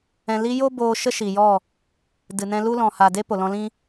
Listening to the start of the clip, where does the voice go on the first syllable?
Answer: low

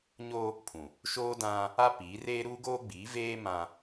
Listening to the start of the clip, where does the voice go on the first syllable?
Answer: high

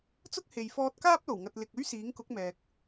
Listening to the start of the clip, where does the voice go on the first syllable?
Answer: high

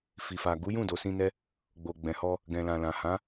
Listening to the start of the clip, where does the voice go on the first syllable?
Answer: low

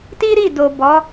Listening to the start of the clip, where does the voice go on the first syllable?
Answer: high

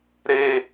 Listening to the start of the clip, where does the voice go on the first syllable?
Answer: high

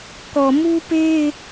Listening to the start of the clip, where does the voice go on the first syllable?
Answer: low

